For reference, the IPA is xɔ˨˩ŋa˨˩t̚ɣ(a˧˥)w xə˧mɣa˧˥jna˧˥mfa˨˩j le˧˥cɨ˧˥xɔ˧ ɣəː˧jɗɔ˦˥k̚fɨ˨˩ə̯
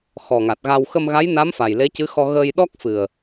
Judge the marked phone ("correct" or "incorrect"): incorrect